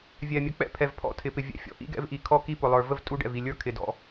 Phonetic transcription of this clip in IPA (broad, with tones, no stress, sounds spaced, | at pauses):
vʲ ɛ˨ mʲ ə˨ k͡p ɛ̰˦ pʰ ɛ˨ v pʰ ɔ̰˦ tʰ ɪ˨ p ɪ˨ vʲ ɛ̰˨ fʲ ɔ̰˨ ʔ ḭ˦ ɡ ɛ̰˦ v ʔ i˨ kʰ ɔ˦ k i˦ p ʊ˨ lˠ ə˞˨ v ə˦ v tʼ u˦ ɖ ɛ̰˨ v i˨ lʲ ə˞˦ kʰ ɪ˨ d ɔ̰˦